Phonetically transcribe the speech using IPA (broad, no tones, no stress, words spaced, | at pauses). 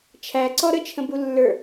t͡ʃʰæǀɔ ɾət͡ʃʰə̃bulːə˞